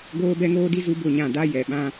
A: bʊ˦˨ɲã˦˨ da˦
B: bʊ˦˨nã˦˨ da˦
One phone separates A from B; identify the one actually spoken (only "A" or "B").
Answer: A